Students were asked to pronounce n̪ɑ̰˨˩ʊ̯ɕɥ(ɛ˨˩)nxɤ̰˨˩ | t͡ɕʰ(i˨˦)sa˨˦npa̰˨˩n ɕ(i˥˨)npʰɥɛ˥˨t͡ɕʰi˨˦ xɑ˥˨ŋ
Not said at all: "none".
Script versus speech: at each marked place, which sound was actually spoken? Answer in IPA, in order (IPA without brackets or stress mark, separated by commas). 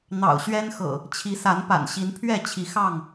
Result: ɛ˦, i˨˦, i˨˦